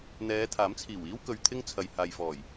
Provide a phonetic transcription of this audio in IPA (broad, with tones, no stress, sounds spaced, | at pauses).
n̪ ɛː˨˧ t̪ʰ aː˨˥ m t͡sʰ iː˨˩ w iː˥ w k ɵ˨ ɥ t̪ʰ ɪ˥ ŋ t͡sʰ ɐ˨ j h aː˨ j f ɔː˨˩ j